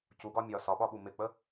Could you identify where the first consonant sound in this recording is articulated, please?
palatal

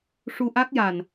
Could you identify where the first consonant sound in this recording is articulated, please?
retroflex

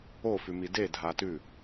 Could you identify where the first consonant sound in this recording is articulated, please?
labial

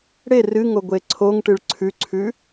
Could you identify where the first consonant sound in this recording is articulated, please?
retroflex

